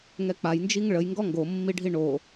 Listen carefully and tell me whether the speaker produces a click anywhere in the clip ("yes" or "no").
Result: no